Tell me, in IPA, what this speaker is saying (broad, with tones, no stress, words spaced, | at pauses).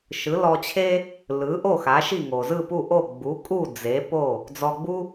ʃɯ˩˥ lɔ˧t͡ɕʰe˥ | lɯ˩˥ʔo˥˩ xa˩˥ʃi˥˩ ŋo˩zɯ˥˩pu˥˩ʔo˥˩ ɡ͡bu˩˥ kʼu˥˩ d͡ze˩˥po˥˩ | d͡zɔ˧ɡ͡bu˥